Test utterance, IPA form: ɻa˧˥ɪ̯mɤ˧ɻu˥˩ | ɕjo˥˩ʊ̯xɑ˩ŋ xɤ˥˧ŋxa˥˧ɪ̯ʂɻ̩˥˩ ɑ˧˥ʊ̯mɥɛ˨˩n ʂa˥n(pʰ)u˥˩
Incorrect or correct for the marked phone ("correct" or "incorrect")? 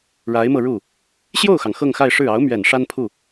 correct